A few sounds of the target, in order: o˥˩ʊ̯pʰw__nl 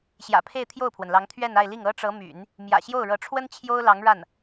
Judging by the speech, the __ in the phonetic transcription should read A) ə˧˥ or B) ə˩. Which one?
B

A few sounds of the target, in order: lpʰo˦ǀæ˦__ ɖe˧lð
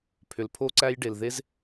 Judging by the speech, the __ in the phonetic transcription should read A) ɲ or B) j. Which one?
B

